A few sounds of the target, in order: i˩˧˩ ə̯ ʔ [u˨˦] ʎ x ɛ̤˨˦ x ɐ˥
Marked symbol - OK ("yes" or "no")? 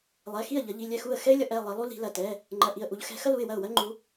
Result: yes